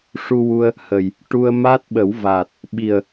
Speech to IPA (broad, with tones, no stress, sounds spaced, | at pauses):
ʂ u˧ w u˧ ə̯ | h ə˨˩ j | ʈ u˧ ə̯ m a˦˥ t̚ ɓ ə˨˩˦ w v a˨˩ t̚ | ɓ i˨˩ ə̯